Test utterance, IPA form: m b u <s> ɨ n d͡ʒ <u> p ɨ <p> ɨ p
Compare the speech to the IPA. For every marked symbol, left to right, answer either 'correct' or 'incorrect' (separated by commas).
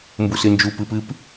correct, correct, correct